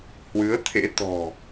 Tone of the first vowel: rising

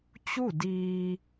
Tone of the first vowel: falling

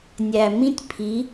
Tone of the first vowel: low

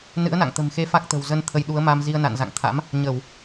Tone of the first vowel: rising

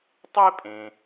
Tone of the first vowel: high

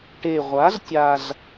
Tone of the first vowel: low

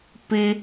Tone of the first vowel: high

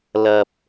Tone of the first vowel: low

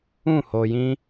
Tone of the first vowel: falling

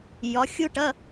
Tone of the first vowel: rising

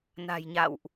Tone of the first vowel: low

